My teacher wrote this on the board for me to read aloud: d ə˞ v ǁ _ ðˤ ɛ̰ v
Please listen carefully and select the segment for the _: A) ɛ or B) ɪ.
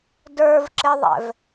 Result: B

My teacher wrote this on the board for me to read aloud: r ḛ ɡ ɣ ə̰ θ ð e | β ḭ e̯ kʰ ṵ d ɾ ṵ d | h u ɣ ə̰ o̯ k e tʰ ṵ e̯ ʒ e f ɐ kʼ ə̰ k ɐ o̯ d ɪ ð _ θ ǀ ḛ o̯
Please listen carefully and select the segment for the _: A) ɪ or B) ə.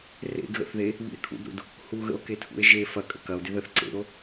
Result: B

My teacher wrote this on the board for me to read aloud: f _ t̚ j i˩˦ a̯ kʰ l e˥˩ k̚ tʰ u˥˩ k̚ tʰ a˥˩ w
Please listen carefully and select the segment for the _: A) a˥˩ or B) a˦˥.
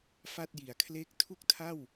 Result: A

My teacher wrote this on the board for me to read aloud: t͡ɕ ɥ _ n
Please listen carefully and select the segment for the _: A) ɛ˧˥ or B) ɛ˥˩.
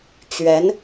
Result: A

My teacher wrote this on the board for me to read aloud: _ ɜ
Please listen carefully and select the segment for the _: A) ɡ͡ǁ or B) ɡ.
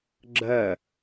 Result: A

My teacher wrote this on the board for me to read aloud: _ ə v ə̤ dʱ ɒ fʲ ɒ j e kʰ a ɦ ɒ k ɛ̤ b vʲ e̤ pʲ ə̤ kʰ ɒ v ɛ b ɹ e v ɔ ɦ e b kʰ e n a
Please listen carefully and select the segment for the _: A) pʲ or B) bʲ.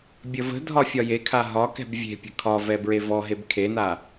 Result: B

